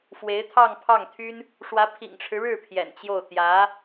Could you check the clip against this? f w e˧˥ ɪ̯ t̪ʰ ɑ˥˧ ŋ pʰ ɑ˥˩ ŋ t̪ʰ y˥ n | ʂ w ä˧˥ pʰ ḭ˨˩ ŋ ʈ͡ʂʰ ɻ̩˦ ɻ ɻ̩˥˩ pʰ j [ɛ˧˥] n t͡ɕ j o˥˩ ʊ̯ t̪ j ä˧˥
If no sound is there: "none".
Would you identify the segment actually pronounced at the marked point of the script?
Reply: ɛ̰˨˩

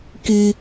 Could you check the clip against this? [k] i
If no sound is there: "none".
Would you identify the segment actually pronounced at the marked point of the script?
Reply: k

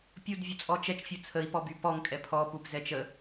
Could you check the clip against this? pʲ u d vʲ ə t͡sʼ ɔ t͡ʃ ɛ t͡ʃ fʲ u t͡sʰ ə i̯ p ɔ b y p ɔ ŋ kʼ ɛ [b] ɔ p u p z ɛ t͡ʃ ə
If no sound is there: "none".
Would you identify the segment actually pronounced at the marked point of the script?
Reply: pʰ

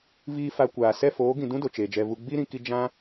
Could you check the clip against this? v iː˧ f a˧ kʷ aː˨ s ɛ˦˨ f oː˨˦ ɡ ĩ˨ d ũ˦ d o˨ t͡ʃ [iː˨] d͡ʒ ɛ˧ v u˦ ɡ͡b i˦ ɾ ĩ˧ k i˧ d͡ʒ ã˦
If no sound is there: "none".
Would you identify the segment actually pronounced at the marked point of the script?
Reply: eː˨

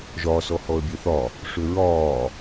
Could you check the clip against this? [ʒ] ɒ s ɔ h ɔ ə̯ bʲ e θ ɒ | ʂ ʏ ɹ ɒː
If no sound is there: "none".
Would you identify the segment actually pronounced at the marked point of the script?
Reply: ʒ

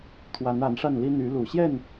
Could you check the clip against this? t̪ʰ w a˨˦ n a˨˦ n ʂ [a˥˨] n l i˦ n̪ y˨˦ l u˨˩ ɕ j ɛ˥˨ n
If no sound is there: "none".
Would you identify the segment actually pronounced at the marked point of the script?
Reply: a˥˨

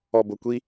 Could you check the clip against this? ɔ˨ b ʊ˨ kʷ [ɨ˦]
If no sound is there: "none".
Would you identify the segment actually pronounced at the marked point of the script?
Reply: i˦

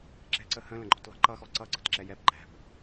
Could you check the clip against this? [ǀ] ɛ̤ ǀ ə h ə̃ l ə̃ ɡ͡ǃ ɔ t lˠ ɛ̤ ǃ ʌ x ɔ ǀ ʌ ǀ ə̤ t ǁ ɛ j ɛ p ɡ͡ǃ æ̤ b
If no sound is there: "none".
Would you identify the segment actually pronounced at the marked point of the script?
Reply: ǁ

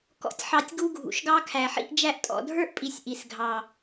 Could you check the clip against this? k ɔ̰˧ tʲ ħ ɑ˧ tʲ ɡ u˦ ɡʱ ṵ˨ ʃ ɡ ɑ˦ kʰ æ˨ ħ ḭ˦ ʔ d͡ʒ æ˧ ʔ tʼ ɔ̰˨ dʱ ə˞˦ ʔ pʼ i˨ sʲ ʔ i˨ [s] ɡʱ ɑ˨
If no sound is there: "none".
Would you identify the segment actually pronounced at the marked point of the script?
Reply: s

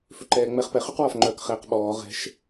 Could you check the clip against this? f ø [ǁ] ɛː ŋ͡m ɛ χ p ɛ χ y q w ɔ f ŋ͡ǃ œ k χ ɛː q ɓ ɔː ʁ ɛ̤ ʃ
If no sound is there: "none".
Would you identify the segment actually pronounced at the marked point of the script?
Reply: ǃ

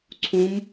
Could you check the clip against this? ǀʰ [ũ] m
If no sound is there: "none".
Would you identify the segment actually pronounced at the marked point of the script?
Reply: ũ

